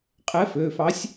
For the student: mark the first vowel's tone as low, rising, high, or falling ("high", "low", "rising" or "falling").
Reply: rising